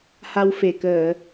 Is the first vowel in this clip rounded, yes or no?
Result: no